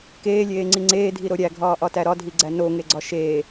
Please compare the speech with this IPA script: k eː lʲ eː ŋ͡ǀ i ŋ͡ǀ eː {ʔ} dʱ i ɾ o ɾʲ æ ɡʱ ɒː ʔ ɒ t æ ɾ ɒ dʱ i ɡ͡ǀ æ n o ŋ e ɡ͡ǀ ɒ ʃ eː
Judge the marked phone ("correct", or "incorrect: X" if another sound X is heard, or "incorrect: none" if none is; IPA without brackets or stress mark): incorrect: none